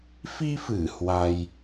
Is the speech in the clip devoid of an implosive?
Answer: yes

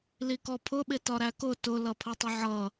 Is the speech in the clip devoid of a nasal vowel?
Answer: yes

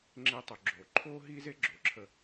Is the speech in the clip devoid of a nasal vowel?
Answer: yes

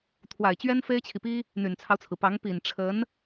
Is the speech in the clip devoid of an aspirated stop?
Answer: no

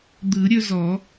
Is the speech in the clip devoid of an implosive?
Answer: yes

